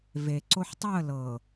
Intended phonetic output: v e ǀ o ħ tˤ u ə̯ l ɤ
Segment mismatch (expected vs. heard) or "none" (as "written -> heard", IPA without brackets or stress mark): none